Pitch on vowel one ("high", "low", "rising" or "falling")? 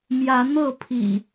rising